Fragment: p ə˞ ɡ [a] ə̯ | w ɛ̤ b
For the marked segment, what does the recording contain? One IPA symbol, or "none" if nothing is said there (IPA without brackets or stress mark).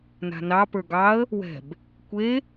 ɑ